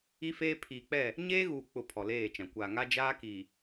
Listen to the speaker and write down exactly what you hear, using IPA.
i˦ f eː˦ pʰ iː˨ k͡p ɛ˦˨ | ɲ eː˦ ɣ uː˨ k͡p ʊ˨ pʰ ɔ˨ l eː˦˨ t͡ʃ ã˨ kʷ aː˨ ŋ a˦ d͡ʒ aː˦ k iː˨

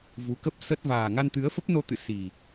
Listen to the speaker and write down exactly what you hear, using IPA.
v u˨˦ k ə˦˥ p̚ s ə˦˥ t̚ v aː˨˩ ŋ a˧ n t̪ ɨ˨˦ ə̯ f ə˦˥ p̚ n o˧ t̪ ɨ̰˧˨ s i˨˩

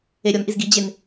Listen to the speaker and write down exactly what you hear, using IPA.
e ɾʲ ɔ n ʔ i z ɡ i d͡ʑ e n

